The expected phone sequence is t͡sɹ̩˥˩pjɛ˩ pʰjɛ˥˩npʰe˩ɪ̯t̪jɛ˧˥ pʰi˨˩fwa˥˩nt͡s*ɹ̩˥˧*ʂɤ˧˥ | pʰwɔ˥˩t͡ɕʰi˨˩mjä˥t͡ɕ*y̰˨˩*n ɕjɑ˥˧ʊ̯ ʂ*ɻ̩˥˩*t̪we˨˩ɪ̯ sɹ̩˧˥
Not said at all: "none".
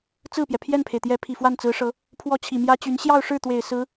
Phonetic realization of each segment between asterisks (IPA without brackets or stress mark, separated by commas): ɹ̩˧˥, y˧˥, ɻ̩˥˩